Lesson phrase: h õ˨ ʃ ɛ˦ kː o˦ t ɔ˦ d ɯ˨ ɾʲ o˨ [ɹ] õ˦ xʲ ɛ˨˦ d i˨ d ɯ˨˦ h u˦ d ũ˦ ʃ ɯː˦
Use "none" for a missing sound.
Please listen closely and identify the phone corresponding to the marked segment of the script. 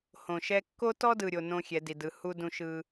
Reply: n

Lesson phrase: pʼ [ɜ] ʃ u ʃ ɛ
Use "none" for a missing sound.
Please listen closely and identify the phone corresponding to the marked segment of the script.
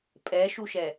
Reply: ɛ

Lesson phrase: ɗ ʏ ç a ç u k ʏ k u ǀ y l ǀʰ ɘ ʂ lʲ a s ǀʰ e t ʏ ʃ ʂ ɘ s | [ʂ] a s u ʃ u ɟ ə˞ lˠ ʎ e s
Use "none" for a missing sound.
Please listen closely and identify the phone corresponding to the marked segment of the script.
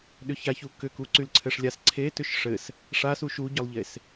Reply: ʂ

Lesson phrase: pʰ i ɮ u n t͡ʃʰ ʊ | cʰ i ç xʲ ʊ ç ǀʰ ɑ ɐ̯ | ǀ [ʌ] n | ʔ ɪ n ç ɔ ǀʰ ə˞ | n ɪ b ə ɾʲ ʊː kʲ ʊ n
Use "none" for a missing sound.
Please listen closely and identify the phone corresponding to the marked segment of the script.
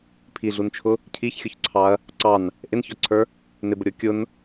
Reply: ɑ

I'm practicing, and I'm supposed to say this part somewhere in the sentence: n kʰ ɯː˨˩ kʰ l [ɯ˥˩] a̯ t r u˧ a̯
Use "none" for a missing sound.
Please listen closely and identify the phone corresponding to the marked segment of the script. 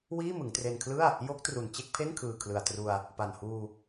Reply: ɯ˨˩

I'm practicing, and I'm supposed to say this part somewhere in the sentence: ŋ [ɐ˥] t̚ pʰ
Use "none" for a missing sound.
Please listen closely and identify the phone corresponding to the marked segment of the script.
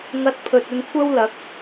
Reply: ɐ˧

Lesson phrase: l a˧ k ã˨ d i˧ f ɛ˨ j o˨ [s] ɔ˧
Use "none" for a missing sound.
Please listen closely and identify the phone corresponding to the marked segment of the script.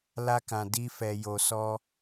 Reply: s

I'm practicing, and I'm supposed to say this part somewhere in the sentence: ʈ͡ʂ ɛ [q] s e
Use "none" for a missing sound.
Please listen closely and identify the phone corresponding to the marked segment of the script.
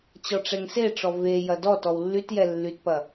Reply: ŋ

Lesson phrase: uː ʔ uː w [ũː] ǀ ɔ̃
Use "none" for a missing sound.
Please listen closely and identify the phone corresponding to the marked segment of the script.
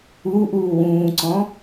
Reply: ũː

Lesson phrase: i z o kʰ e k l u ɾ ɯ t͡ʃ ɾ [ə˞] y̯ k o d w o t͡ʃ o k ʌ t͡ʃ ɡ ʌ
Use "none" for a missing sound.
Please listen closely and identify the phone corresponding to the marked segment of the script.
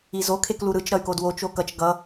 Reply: ʌ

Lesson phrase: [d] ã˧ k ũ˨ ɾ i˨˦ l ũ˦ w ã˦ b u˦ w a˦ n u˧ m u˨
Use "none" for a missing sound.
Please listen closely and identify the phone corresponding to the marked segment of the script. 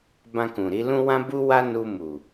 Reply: b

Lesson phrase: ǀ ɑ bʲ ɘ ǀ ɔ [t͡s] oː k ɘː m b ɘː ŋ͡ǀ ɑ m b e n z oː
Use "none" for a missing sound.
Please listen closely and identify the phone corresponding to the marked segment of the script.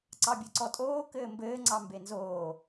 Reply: tʼ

